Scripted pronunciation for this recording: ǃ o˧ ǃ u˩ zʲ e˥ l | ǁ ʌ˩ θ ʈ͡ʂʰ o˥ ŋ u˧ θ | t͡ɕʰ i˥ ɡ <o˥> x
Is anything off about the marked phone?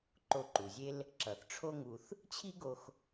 yes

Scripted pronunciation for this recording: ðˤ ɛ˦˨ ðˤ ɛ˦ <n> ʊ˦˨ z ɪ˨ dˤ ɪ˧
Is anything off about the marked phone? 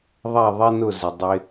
no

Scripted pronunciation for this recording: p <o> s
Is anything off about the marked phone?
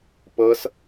yes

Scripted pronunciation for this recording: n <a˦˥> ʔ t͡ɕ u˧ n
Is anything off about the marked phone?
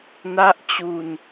no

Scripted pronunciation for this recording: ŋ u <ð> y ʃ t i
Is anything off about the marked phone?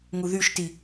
no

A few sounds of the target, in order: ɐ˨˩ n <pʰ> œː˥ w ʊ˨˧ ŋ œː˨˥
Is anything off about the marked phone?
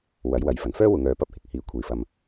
yes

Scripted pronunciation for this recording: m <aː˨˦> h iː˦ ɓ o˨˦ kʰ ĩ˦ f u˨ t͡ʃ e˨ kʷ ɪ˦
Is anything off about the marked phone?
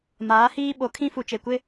no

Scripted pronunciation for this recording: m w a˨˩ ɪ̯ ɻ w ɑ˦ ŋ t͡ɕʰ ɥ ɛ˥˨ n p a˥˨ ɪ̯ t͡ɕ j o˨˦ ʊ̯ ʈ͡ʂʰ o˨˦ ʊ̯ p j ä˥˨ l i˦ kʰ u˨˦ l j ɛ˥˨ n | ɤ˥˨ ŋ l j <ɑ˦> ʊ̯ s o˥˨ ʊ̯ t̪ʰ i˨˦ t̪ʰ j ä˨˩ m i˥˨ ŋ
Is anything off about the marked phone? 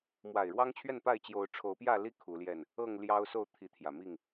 no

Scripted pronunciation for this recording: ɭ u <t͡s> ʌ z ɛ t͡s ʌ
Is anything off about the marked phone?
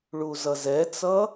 yes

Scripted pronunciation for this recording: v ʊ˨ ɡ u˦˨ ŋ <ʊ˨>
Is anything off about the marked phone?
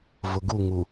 yes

